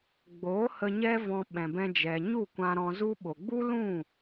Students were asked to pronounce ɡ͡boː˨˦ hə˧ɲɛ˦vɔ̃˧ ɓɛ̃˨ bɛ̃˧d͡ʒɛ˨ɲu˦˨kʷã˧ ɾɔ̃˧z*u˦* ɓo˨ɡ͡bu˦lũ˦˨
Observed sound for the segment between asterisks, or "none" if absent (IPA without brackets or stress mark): u˦